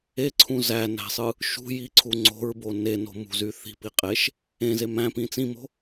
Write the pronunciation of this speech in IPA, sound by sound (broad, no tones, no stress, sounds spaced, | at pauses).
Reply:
e ǀʰ ũ z æ n æ̤ sˤ ɯ | ʃ ṳ j i ǀʰ u ŋ͡ǀ o̤ ɹ b o n e n o̤ m ṳ z y θ i̤ p i qʼ e ʃ | ẽ z e m æ̃ p ĩ t͡s ĩ m o̤